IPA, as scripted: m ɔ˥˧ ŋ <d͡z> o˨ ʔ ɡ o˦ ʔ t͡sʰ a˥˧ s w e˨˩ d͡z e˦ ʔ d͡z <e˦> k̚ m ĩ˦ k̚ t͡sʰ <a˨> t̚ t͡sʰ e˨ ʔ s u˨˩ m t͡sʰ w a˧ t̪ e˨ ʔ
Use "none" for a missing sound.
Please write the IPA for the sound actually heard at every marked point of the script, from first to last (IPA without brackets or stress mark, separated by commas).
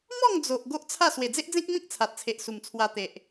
d͡z, ẽ˦, a˨